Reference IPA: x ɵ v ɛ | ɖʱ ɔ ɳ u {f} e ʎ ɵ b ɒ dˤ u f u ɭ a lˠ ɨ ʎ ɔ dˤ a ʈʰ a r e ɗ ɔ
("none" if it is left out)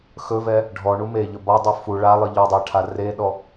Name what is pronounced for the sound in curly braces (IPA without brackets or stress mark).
m